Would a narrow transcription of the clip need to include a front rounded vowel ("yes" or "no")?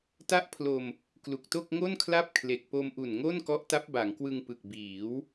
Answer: no